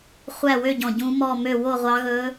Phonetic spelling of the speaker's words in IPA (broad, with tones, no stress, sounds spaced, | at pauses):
χʷ æ˥˨ w ø˥˨ ɟ ɔ̃˧˩ ɟ ũ˧˥ m ɔ˥˨ m ø˥˨ w o˥˨ ʁʷ ɑ˧˥ ɣ ɵ˧˥